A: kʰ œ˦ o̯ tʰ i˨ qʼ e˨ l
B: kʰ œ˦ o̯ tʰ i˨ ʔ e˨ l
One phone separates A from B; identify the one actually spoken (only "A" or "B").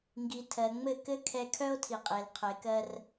A